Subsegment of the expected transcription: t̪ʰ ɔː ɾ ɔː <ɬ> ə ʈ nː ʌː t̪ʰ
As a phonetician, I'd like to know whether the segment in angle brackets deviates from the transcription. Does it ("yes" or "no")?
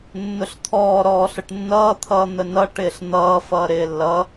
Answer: no